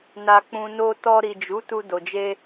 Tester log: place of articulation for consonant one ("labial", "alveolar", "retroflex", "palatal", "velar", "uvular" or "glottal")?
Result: alveolar